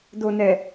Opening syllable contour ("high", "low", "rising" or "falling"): low